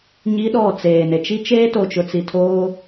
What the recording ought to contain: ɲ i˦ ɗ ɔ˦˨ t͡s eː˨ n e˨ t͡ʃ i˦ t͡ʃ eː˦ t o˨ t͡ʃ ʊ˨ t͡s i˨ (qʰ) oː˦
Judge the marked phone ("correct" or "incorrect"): incorrect